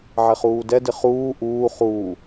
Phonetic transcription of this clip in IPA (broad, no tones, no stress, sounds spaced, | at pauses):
ʕ ɛ χ uː d ɛ d ɪ χ uː ʔ uː χ uː